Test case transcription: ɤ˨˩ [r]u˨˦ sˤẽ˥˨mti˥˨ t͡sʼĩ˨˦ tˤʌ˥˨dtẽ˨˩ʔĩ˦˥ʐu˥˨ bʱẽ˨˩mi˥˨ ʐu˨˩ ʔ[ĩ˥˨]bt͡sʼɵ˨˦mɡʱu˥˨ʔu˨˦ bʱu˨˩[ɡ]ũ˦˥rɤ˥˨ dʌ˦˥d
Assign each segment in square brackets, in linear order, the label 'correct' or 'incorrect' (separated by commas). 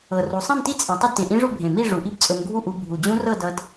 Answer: correct, incorrect, incorrect